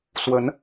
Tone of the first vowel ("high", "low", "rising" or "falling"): rising